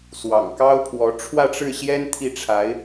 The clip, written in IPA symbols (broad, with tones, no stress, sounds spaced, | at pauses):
s w ɑ̰˨˩ ŋ k ɑ˥ ʊ̯ pʰ w ɔ˧˥ ʈ͡ʂʰ w ä˥˧ ʈ͡ʂ ɻ̩˥˩ ɕ j ɛ˥ n t̪ʰ i˥˩ ʈ͡ʂʰ a˧˥ ɪ̯